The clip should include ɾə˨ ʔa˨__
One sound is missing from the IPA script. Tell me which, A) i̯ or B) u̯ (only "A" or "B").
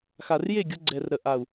B